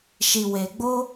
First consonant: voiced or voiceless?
voiceless